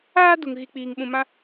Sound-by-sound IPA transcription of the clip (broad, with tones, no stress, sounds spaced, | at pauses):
aː˦ d u˨ ŋ ɣ i˨ k͡p iː˨ ŋ ɓ ũ˨ m ã˦